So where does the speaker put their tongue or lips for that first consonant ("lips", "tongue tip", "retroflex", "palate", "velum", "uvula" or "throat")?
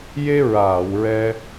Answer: palate